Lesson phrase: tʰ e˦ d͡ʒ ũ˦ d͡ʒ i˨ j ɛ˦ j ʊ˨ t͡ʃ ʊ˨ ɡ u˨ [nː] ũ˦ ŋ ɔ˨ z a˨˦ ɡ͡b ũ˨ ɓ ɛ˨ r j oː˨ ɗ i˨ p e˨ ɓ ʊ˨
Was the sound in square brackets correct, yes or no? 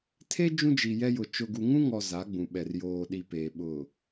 no